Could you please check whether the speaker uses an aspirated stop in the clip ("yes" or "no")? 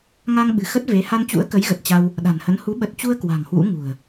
no